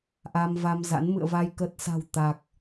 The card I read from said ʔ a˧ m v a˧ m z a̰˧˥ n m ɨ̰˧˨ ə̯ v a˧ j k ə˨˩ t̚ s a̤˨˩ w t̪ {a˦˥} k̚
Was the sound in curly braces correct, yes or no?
no